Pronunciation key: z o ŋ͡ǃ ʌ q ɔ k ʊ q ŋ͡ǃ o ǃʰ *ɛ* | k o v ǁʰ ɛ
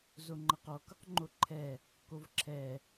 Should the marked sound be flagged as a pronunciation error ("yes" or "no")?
no